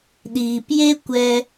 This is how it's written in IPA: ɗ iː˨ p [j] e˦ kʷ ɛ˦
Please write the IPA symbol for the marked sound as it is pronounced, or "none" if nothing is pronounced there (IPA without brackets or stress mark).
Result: j